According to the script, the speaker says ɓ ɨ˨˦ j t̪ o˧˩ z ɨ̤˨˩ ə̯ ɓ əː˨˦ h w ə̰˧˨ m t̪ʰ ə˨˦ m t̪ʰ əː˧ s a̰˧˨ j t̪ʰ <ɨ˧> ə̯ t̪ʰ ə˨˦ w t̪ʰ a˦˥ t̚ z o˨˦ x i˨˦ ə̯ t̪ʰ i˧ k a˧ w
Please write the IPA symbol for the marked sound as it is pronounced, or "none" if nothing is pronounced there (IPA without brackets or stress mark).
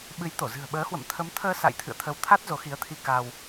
ɨ̰˧˨